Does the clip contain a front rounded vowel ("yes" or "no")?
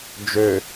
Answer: yes